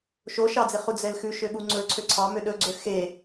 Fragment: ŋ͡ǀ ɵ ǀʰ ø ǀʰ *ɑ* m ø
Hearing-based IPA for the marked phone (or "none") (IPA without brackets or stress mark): ɑ